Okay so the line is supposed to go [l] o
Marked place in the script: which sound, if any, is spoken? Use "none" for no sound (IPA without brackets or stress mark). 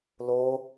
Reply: l